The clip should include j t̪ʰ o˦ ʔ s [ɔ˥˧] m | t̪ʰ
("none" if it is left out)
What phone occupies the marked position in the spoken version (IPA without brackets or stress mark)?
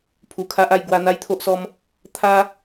ɔ˦